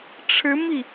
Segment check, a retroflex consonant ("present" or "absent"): present